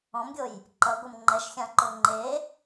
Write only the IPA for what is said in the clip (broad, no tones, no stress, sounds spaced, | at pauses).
ɔ̃ m ɡʲ o j | ǃ ʌ ɡʷ ɤ m ŋ͡ǃ ɛ ʃ xʲ ã ǃ o ŋ͡ǃ e